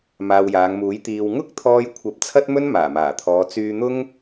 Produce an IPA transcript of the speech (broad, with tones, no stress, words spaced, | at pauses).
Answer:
maː˨wjaː˨˧ŋmuː˨˥j t̪iː˨w ŋʊ˥k̚t̪ʰɔː˧jkʷʰɐ˨˥p̚ t͡sʰɐ˥t̚mɵ˥n maː˨˩maː˨˩t̪ʰɔː˨˧ t͡syː˧n̪ʊ˥ŋ